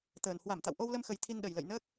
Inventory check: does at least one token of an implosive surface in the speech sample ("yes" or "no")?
yes